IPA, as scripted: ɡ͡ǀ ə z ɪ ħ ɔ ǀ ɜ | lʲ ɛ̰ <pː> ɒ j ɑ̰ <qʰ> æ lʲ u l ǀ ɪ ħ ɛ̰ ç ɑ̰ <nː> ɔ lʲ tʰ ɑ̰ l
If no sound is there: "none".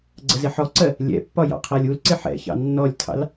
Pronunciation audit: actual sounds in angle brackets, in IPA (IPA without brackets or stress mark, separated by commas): pː, qʰ, nː